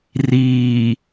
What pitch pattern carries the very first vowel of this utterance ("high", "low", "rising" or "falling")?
low